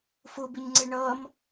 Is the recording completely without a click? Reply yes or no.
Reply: no